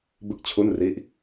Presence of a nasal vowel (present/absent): absent